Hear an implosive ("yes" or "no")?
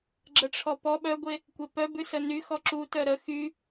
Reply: yes